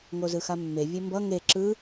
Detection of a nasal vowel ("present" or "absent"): absent